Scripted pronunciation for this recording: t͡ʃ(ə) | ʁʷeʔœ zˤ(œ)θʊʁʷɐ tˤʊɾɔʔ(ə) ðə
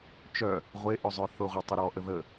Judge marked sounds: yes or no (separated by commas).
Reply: no, yes, yes